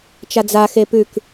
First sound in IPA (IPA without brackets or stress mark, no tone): t͡ʃ